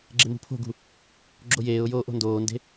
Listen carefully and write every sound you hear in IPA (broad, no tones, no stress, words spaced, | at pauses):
ɡ͡ǁemṳpʰo̤ɡṳ | ɡ͡ǁojeːʊ̯joː ʔo̤ndoːnde̤